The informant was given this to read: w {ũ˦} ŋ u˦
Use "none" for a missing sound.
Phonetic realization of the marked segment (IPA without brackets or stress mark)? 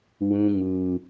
ũ˦